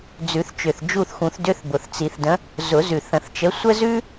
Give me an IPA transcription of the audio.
d͡z ʉ˨˩˦ θ t͡ʃ ʏ˨˩ θ d͡ʒ u˦˨ θ x ũ˨˩˦ θ d ʏ˧˥˧ θ b ʊ˨˩ θ t͡s i˨˩˦ θ d ə̃˨˥ | z ʊ˨˩˦ z ʉ˨˩ θ ə̃˨˩˦ θ t͡ʃ ə˨˥ sʷ ə˥ z ʉ˥

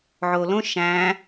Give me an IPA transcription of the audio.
ʕ o l õ ʃ æ̃

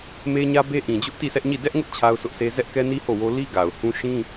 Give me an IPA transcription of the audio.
m e˦ ɲ ä˦ b e˦ ʔ ĩ˨ d͡ʑ ʊ˦ ʔ t i˦˨ sʰ ɛ˦ ʔ ɲ i˦˨ d ɛ˦ ʔ ŋ ʊ˦ ʔ t͡ɕʰ a˦ ʊ̯ s ʊ˦ ʔ sʰ e˦ z ɛ˦ ʔ k ɛ˦ n i˦ h o˦˨ w o˦ l i˦ ɡ a˨ ʊ̯ h ũ˦ ʃ ĩ˦

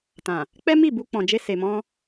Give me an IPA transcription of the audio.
t ã˨ | k͡p ɛ˦ m i˦˨ b u˧ k͡p ɔ̃˨ d͡ʒ e˧ s e˨ m ɔ̃˧

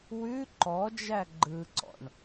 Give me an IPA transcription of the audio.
w ʉ ǃ ɔ d͡ʒ æ ɡ͡ǃ ɯ ǀ ɔ̰ ɳ

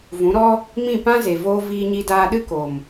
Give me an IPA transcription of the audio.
v ũ˨˦ ɾ ɔ˦ | m ĩ˦˨ p ã˦ z e˨ v oː˧ v iː˧ ɲ i˧ d aː˧ ɗ ɨ˦ k o˨ m

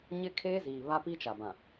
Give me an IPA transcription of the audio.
ɲ ɪ˦ kʰ eː˦ z iː˨ β a˦ p i˦ t͡ʃ a˨ b ã˨

